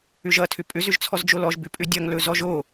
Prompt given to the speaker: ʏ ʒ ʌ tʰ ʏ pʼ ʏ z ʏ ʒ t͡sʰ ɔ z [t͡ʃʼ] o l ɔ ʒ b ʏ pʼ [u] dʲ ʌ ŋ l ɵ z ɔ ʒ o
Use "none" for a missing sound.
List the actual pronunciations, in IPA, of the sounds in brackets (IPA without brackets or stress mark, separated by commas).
d͡ʒ, ʏ